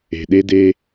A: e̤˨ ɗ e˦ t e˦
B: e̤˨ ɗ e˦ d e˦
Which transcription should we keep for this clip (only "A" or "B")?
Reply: B